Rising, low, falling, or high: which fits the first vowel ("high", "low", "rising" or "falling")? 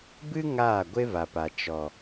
high